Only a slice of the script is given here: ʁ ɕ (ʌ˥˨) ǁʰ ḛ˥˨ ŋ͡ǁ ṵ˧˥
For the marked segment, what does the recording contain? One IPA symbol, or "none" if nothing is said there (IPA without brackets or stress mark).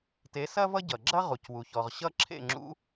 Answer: ʌ˥˨